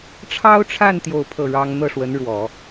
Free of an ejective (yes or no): yes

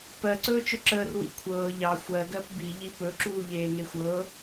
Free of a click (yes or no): no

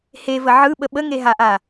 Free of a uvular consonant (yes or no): yes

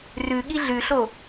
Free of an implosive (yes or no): no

